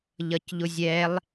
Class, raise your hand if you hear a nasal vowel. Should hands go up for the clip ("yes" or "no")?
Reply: no